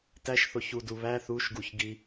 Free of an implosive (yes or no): yes